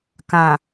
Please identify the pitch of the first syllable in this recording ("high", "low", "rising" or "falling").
low